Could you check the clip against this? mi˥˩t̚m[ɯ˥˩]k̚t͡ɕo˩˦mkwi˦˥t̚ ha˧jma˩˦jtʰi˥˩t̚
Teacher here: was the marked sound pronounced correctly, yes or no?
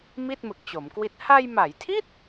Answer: no